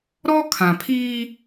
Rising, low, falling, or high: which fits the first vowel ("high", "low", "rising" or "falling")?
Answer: high